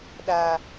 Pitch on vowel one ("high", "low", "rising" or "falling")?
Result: low